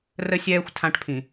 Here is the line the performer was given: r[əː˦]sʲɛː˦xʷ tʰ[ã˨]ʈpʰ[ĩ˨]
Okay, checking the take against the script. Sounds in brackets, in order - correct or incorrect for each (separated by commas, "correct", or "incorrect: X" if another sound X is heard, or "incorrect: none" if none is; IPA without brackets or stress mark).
incorrect: ə˦, incorrect: ã˦, correct